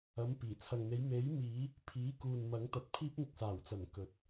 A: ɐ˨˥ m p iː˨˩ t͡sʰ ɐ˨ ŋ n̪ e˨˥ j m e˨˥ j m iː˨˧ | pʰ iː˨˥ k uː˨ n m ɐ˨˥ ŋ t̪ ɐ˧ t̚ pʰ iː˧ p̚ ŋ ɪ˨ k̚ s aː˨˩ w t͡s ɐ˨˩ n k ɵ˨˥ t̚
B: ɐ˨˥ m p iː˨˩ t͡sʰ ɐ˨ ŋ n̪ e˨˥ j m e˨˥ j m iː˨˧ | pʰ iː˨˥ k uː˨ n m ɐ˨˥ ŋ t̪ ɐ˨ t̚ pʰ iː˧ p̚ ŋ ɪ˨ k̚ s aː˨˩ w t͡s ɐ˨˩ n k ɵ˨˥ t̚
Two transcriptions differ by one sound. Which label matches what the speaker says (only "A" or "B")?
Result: B